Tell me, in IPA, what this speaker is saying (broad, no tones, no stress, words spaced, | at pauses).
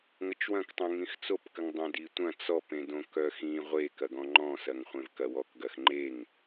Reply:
ŋət͡ʃwɐ̃ktˤõ ŋĩxt͡sopkəŋdˤœ̃ ditʷɐ̃ t͡sɔpẽdõ kœxĩ ʁʷekɐɡɔ̃ ŋ͡ǃɔ̃sɐŋ χʷẽvkɐwɔkɡɐx ŋ͡ǃeŋ